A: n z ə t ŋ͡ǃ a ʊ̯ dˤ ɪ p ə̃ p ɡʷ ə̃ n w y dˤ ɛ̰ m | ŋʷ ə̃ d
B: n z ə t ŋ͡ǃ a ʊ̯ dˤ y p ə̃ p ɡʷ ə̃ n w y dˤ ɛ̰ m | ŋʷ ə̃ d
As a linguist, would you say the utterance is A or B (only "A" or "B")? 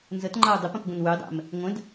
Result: A